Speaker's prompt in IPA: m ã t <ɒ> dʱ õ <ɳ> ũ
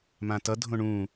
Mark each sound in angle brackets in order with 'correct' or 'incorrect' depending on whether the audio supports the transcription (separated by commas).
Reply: incorrect, correct